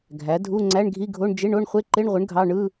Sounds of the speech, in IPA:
ɡʱ æ˩˥ dʱ u˧˥˧ ŋ͡ǀ æ˧˥˧ ɳ ɡʱ i˧˥˧ ɡʱ o˧˥˧ ɳ d͡ʒ e˧˥˧ ɳ o˧˥˧ ɳ χʷ e˧˥˧ ǃ e˧˥˧ ɳ ʁʷ ɯ˩˥ ɳ ɡʱ ɑ˧˥˧ ɳ ɯ˧˥˧

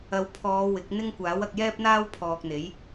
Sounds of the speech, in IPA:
ɐ˨˧ w pʰ ɔː˨˧ w ɪ˨˥ k̚ n̪ ɪ˥ ŋ kʷ aː˨˥ w ɐ˧ k̚ j ɛː˥ p̚ n̪ aː˥ w pʰ ɔː˧ k̚ n̪ e˨˥ j

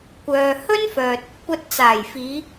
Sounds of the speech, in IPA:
kʷ œː˨ h ɵ˥ n f œː˨ t̚ | kʷ ɐ˨˥ t̚ t͡s aː˨˩ j f iː˨˧

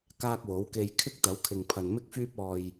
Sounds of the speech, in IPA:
k aː˧ k̚ w o˨˥ w k e˧ j kʰ ɪ˥ k̚ t̪ ɐ˨˥ w kʰ ɪ˨ ŋ pʰ ɐ˨ n m ɪ˧ k̚ f yː˧ p̚ ɔː˨ j

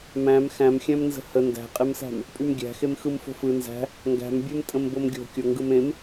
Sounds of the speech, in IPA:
m æ̃ m x æ̃ m xʲ æ̃ m n z ə̤ h ə n d æ̤ qʼ e m s æ̤ m | pʼ y m ɡʲ æ̤ x e m x ɯ m f o̤ f ɯ n z æ̤ | ŋ ɡ æ̤ m bʲ e m tʼ ə̃ m b o m ɡʲ o̤ kʲ o ŋ ɡ ɯ m ẽ m

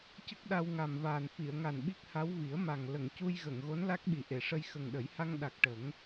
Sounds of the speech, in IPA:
c ə˦˥ k̚ ɗ a˧ w ŋ a˨˩ m v aː˨˩ n f i˨˩˨ ə̯ ŋ a˨˩ n ɓ i˦˥ k̚ h a˧˥ w v i˨˩˦ ə̯ m a˨˩ ŋ l ə˨˩˨ ŋ c u˧ j ɣ ə˨˩˨ ŋ ɣ o˧˥ n l a˦˥ k̚ ɓ i˨˩˨ ʔ e˨˩˨ ʂ ə˧ j x ə˨˩ ŋ ɗ ə˨˩˦ j h a˧ ŋ ɗ a˨˩ k̚ ʈ ə˨˩˦ ŋ

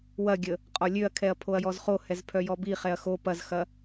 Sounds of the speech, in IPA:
w ɐ ɡʲ ə | qʼ ɔ lʲ ø ɐ̯ kʰ ɛ ɐ̯ pʰ o ɐ̯ j ɔ z χ o h ɛ z pʰ œ j ɔ b i χ ɛ ɐ̯ x o p ɐ z x ɐ

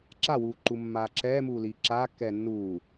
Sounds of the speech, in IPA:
ǁ a w uː ǃ u mː aː ǁ ɛː m uː l iː ǁ aː kː ɛː nː uː

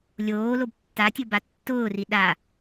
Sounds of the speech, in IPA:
lʲ oː l o b tː a tʲ o b a tː ʊː r i ɗ a

